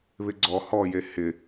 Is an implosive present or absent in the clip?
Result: absent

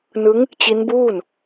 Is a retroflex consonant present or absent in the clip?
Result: absent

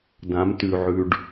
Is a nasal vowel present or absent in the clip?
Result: present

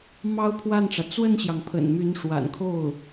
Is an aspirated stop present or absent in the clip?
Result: present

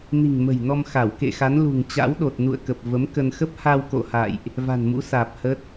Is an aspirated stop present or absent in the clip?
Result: absent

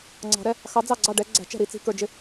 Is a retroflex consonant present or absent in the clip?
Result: present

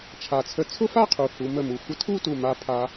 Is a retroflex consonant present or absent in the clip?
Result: absent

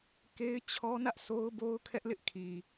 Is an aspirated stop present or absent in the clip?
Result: present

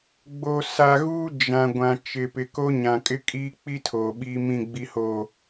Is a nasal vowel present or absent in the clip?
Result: present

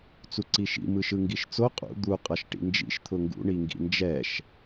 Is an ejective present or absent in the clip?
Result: present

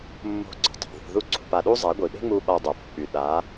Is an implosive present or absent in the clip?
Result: present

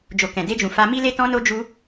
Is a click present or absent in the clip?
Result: absent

